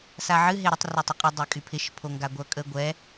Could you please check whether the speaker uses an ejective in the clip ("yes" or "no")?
yes